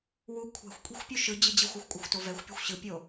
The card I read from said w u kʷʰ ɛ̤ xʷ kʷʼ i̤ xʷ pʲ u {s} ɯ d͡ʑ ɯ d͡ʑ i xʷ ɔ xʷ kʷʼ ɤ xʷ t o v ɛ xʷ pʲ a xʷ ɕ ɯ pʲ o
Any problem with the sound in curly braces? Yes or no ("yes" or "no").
yes